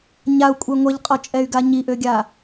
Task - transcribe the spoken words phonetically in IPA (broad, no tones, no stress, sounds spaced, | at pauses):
ɲ a u̯ kʷʼ ɛ ŋʷ ɛ ʎ qʼ ɔ t͡ʃʼ ɛ y̯ ɡ a ɲ i ʔ ø ɡʲ a